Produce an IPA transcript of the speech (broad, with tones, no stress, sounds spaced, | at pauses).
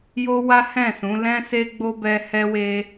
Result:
j o˦ w a˦ h ɛ̃˦˨ s ũ˨˦ l ɛ̃˦ s e˦ ɡ͡b o˦ b ɛ˧ h ɛ˦ w e˦